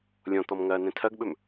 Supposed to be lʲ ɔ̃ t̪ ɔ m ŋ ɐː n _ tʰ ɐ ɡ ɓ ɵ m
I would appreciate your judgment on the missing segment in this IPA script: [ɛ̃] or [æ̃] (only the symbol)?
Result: ɛ̃